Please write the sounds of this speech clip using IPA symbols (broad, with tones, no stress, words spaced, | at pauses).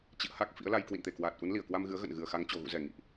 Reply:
t͡ɕḭ˧˨ə̯ha˦˥k̚ fḭ˧˥ə̯la˧j kwḭ˧˨nt̪e˧˩kwaː˨˩t̚ ʔu˨˦nli˧˩ə̯kwa˧mɣɨ˨˦ə̯ ɣə̰˧˨n ɣɨ˨˩ə̯xa˨˦ŋ t͡ɕo˨˩ɣṵ˧˨zɛ˧˩ ŋḭ˧˨ʔ